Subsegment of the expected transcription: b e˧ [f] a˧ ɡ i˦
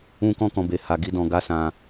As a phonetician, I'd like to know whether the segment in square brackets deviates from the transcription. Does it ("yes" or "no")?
yes